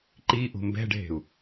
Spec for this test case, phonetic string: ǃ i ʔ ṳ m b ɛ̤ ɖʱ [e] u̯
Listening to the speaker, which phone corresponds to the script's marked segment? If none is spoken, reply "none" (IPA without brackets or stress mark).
e̤